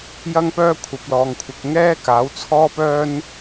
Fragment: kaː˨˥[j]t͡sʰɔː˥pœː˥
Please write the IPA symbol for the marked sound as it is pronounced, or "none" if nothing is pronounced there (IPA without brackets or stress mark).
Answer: w